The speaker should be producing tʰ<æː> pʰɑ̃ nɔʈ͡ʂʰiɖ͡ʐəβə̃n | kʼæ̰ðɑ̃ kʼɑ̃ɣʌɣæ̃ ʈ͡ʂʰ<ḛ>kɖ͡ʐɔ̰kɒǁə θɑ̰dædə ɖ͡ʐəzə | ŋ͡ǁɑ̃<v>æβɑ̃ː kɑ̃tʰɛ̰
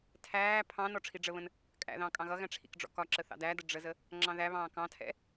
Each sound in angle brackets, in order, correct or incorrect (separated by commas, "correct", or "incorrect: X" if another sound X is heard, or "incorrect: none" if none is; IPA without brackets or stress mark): correct, incorrect: ḭ, incorrect: ð